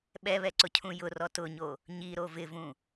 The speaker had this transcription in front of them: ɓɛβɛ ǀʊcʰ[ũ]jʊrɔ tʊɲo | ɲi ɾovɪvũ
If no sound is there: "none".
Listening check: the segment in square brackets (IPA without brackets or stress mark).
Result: ũ